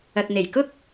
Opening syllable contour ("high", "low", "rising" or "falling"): low